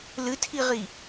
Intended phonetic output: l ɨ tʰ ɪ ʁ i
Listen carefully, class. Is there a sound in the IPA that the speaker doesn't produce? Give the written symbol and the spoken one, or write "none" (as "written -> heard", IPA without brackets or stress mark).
ɪ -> i